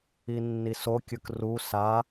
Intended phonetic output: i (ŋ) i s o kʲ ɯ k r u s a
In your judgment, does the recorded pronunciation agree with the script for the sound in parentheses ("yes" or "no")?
no